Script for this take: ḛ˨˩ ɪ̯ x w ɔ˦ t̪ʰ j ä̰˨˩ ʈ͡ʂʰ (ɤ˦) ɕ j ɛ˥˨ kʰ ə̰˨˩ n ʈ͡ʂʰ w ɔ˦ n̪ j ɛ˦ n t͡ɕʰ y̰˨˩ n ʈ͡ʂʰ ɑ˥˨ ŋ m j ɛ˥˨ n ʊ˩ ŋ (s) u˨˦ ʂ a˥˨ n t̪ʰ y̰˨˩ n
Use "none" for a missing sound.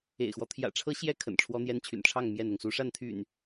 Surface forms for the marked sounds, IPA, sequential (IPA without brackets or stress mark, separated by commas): ɤ˦, s